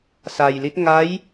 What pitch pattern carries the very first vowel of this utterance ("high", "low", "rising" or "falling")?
low